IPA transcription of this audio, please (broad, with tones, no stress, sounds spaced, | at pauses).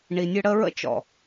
ɳ i˨ nʲ ə˦ ɽ ə˦ ɹ ə̰˦ t͡ʃ ɔ̰˨